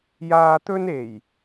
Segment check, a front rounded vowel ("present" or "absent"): absent